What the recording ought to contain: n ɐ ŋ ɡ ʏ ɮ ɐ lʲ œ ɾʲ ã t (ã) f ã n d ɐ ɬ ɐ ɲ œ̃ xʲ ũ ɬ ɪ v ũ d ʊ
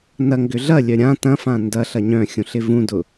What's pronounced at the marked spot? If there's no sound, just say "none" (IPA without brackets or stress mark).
ɐ̃